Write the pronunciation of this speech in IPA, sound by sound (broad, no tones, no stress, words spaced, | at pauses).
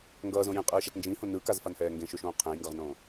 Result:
ŋɡʌːzõ jẽqʼɯːʃat nd͡ʒĩhõ nɯkazfanhɛː ŋɡẽʃoʃõː qʰẽjŋɡʌʁnõː